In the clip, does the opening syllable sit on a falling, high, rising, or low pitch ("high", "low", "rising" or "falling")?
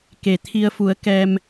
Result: low